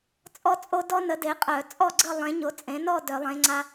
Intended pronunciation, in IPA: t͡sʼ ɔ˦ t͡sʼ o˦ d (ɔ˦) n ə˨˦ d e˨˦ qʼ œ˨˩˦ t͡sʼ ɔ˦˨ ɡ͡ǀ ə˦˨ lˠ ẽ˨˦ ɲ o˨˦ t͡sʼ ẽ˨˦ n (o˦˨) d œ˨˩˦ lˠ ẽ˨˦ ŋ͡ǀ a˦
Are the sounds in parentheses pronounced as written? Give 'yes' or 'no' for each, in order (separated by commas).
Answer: yes, no